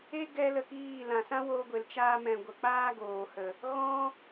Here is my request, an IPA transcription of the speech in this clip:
e˦ ɡ ɛ˦ l ə˧ k iː˦˨ l ã˨ s ã˦ w o˧ ɡʷ e˨ l t͡ʃ aː˧ m ɛ̃˨ ɡʷ ə˨ k͡p aː˦ ɡ oː˨ h ə˨ | ɣ ɔ̃˦

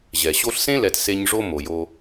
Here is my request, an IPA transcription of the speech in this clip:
ʑ ɛ˨ ɕ o˧ ɬ s ẽ˦ l ɛ˨ t s e˧ ɲ ʐ o˦ m o˨ j o˧

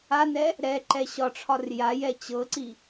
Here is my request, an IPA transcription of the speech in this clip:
a n ɛ | ɾ ɛ ǃ ɛ ɕ ɒ ʈ͡ʂʰ ɒ r j a j ɛ t͡ɕ ɤ ǀ i

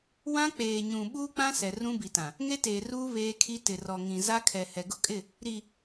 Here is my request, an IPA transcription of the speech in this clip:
w ã˦ k͡p eː˨ ɲ ũ˨ ɓ uː˦ k͡p ã˦ s ɛ˨ r ũ˦ b i˨ t ã˨ | ŋ e˦ t eː˨ r uː˦ β eː˦ kʰ i˦ t ɪ˨ r ɔ˨ ŋ ĩ˨ z a˦ kʰ ɛ˨ h ɛ˨ ɡ ʊ˦ kʼ ɪ˦˨ | ɾ i˨

